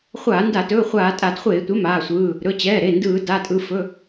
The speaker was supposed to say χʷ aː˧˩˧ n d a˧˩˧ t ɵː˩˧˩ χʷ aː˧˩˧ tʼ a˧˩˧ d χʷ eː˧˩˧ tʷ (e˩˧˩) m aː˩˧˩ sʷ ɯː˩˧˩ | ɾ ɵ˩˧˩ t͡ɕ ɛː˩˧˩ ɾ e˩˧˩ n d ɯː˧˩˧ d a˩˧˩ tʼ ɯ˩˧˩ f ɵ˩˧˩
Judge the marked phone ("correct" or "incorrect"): correct